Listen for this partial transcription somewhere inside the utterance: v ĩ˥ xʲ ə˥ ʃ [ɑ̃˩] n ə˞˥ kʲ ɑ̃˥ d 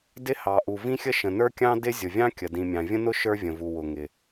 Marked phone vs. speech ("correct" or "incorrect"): incorrect